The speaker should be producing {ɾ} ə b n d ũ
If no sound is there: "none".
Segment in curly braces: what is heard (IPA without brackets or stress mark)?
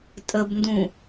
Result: tʼ